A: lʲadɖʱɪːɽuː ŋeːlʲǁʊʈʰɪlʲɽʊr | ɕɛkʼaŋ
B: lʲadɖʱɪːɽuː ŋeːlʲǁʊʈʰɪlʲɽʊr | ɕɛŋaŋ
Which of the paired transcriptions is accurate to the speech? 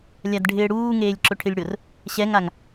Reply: B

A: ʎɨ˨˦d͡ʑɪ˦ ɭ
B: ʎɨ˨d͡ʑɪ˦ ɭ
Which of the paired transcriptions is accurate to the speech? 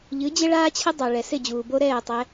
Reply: A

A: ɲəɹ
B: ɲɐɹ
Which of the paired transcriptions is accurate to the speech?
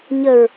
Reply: A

